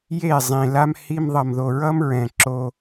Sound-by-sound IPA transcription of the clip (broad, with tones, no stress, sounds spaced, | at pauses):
j e˦˨ zˤ ĩ˨ l a˦ m h i˧ m ðˤ ʌ˨ m ð o˨ ɹ ʌ˦ m ɹ ɛ̃˨ ǁ o˧